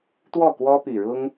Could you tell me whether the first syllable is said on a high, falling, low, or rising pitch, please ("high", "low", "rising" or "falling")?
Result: falling